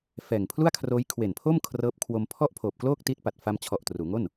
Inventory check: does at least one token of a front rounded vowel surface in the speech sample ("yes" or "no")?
no